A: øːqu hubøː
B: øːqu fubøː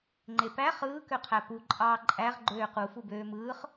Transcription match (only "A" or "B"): B